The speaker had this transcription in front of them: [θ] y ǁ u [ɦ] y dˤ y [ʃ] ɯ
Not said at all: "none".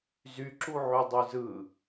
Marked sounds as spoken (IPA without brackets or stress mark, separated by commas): z, ʕ, z